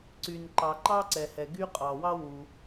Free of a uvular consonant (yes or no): no